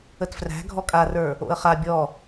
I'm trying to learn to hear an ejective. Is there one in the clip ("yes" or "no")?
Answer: yes